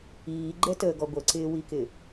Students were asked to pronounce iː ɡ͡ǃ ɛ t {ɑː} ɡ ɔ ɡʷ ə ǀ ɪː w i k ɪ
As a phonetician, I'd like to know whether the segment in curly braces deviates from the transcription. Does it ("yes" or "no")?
yes